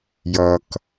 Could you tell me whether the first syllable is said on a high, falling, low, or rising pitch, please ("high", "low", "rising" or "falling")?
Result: low